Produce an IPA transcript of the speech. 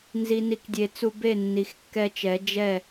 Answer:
n z i˨ n i˨ k dʲ e˨ t͡s u˧ b e˦˨ nː i˨ x kː ɛ˧ t͡ʃ ɛ˨˦ d͡ʒ ɛ˦˨

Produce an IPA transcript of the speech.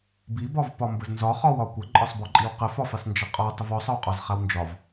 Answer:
b i b ɒ v p ɒ m b ə z n z ɒ χ ɒ w ɒ kʷ ə ǃʼ ɒ sˤ b ɒ ǃʼ i w q ə f ɒ f i sˤ n d͡ʒ ə qʼ ɒ tˤ ə v ɔ sˤ ɒ w qʼ ɒ z χ a w n d͡ʒ ɒ v

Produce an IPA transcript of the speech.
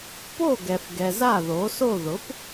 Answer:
p o˥˩ ɡ ɛ˨ f ɡ ɛ˨ z a˥˩ ð o˩˥ s o˥˩ ð ʊ˩˥ p

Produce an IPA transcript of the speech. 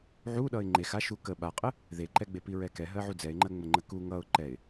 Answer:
ʕ u ɗ ʌ ɪ̯ ŋ͡ǃ e x a ʃ u k ə ɓ a qʼ ə | ð e ǃ ɛ ɡ͡b e p i ɹ ɛ k ɛ ɦ ɜ ʕ u d͡z ɛ ɪ̯ ŋ͡ǃ ɜ ŋ͡m ə ŋ͡ǃ ə k u ŋ ʌ ʊ̯ ǃ ɛ ɪ̯

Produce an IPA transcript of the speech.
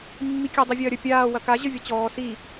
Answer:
mː i kʲ ɐ dˤ i vʲ ɐː ɾʲ ə pʲ aː w ɐ k a ʑ ə vʲ ɐ t͡ɕ ɔː s i

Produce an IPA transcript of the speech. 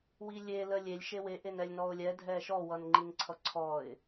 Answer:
w i lʲ e l ə lʲ e lʲ ʃ e w e ʔ e n ɛ lʲ n ɔ ʊ̯ lʲ ɛ dʱ ɛ ʃ ɔ w ʌ n ŋ͡ǃ i n ǀʰ ʌ ǀʰ ɔ ɪ̯

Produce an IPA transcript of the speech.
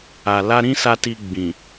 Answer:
a˨ l a˧ ɾ ĩ˦ s a˧ t i˧ ɡ͡b ĩ˨

